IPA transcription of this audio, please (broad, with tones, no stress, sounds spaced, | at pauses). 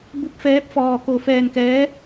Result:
b u˧˥ p̚ f ɛː˧˥ p̚ f ɔː˧ k o˧ f ɛː˧ n k ɛː˧˥